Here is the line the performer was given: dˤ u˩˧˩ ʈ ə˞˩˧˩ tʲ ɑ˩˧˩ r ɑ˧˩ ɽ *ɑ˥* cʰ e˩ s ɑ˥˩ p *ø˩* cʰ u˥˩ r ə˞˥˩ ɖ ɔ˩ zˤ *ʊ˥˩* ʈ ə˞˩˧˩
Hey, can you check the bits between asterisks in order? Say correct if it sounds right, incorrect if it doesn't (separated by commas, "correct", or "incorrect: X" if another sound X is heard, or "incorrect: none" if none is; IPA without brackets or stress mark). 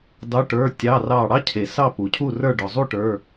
correct, incorrect: u˩, incorrect: u˥˩